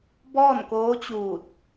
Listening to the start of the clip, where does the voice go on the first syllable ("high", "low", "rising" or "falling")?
falling